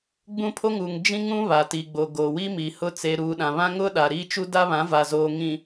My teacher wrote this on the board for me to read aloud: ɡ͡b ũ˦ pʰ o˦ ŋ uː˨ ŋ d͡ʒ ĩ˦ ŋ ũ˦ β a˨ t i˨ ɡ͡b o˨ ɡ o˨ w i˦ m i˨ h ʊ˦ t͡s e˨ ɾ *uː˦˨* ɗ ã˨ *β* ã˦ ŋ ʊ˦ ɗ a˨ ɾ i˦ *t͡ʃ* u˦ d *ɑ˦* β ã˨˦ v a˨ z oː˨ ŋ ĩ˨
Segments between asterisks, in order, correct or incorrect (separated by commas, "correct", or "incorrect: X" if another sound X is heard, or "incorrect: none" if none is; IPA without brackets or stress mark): incorrect: uː˨, correct, correct, incorrect: a˦